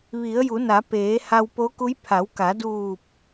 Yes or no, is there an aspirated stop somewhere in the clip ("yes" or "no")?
yes